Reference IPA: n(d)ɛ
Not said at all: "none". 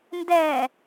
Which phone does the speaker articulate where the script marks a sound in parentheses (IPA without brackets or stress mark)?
d